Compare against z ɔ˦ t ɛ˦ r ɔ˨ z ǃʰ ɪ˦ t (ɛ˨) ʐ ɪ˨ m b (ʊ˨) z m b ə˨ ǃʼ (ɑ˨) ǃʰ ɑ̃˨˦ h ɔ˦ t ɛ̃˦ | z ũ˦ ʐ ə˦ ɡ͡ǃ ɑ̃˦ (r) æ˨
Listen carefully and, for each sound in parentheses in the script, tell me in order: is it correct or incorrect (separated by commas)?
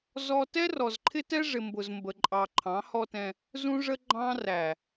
incorrect, correct, correct, correct